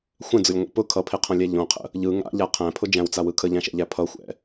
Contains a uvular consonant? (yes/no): yes